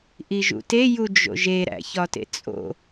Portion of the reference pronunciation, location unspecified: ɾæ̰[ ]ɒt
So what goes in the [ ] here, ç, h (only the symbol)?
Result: ç